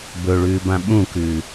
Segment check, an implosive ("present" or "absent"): present